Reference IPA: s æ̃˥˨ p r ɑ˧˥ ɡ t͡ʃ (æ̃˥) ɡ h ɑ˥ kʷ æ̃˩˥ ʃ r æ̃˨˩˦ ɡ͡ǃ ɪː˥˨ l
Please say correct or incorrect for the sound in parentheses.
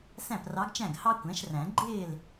incorrect